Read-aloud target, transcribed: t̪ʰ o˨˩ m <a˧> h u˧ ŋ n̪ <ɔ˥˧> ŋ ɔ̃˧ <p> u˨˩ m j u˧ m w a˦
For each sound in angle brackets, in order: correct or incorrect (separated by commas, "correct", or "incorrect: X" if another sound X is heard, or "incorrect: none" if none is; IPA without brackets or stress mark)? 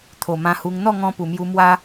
incorrect: ã˧, correct, correct